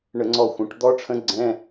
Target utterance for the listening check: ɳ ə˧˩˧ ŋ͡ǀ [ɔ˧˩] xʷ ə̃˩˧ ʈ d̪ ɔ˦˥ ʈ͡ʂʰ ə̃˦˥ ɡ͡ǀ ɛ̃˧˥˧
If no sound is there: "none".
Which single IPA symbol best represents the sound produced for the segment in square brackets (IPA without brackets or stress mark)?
ɔ˧˩